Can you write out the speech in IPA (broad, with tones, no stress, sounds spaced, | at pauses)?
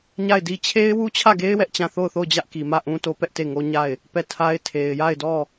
ɲ a˦˨ ɪ̯ d i˦ t͡ɕʰ e˦ ɪ̯ w u˦ t͡ɕʰ ä˦˨ ɡ e˦ ɪ̯ w ɛ˦ ʔ t͡ɕ ã˦˨ θ o˦˨ ʊ̯ θ o˦˨ ʊ̯ d͡ʑ ä˦ ʔ k i˨ m ä˦˨ ʔ ũ˦ t o˦ p ɛ˦ ʔ t e˦˨ ŋ o˦ ɲ a˦˨ ɪ̯ | p ɛ˦˨ tʰ a˦ ɪ̯ tʰ e˨ ɪ̯ j a˦˨ ɪ̯ d ɔ˦˨